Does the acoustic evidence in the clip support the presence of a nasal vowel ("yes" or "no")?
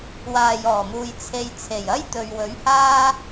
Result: no